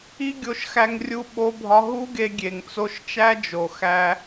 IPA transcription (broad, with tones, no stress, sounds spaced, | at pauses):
i˦ ɡʲ o˧ ʃ x æ˧ ŋ rʲ u˧ ɓ o˦ bʱ ɒ˦ ɦ u˦ ɡ e˧ ɡʲ e˨ ŋ t͡s o˧ ʃ t͡ʃ æ˦ d͡ʒ o˨ x æ˧